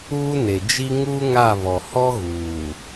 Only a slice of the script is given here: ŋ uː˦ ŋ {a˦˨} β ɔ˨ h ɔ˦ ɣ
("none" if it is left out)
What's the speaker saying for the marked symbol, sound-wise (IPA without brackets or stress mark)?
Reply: a˦˨